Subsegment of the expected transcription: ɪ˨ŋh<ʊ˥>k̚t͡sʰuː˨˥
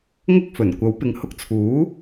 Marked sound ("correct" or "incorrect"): incorrect